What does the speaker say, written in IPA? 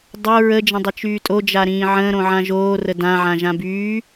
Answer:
dˤ o ɹ ə d͡ʒ ə̃ dˤ ə t͡ʃ yː tʼ o d͡ʒ a ɾ ĩː ʕ ə̃ː ɾ õ ʕ ã ʒ oː r ə d ã ʕ ã ʒ ã b yː

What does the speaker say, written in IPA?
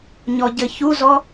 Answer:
ɲ ɔ ɟ ɘ ç u z ɔ

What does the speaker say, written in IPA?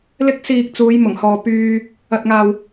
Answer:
l ɪ˥ k̚ s iː˧ k̚ t͡s uː˨˧ j m ʊ˨˩ ŋ h ɔː˨ p yː˧ | ɐ˨ t̚ ŋ aː˨ w

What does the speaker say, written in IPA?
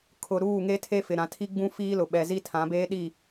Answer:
kʰ ʊ˨ ɾ uː˦˨ ŋ e˦ tʰ e˦ f ɪ˨ ɾ ã˨ tʰ i˦ ɡ͡b ũ˦ f iː˦ l ʊ˨ ɓ ɛ˨ z i˦ tʰ ã˨˦ b eː˦ ɗ i˦˨

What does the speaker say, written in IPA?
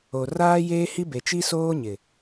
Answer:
o˨ r aː˦ j eː˦ h i˦ b e˨ t͡ʃ i˦ s oː˦ ɲ ɪ˨

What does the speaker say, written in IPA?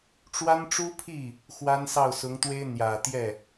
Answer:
ʈ͡ʂ w a˥ n ʈ͡ʂ u˥ pʰ i˥˩ | x w a˥ n s ɑ˥˩ ʊ̯ s ʊ˧˥ ŋ t̪ w e˥ ɪ̯ n̪ j ä˨˩ t̪ j ɛ˥˩

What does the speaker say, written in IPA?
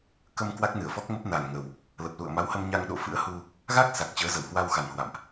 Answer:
k ə˧ m k w a˦˥ k̚ n ɨ˧˩ ə̯ f ɔ˦˥ k̚ m ə˦˥ p̚ n a˨˩ n ŋ ə˨˩ w | l ə˨˩ p̚ l ṵ˧˨ ə̯ m a˨˦ w h ə˧ m ɲ a˧ ŋ ɗ o̰˧˨ f ɨ̰˧˥ ə̯ h u˧ | ɣ a˦˥ k̚ s a˨˩ k̚ t͡ɕ əː˨˦ z ə˧˩ w h w a˧ w x a˨˩ n h w a̰˧˨ m ʔ

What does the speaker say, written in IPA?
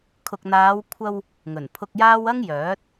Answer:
kʰ ʊ˨ k̚ n̪ aː˨˧ w kʷʰ ɐ˧ w | ŋ ɵ˨˩ n pʰ ʊ˧ k̚ j aː˥ w ɐ˥ ŋ j œː˨˥ t̚

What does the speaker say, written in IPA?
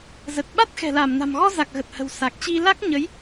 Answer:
z ə˨˩ t̚ ɓ a˦˥ t̚ x ɛ̤˨˩ l a˧˩ m n a̤˨˩ m ɣ ɔ˧ z a˨˩ k̚ ɣ ə˨˩ t̚ h ə̤˨˩ w s a˨˩ k̚ t͡ɕ i˧ l a˦˥ k̚ ɲ ə˨˦ j

